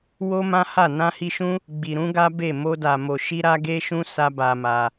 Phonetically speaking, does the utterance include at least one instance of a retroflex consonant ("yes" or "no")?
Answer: no